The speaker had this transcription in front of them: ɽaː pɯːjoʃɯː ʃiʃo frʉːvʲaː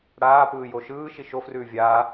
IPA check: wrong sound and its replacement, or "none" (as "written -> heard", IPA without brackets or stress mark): none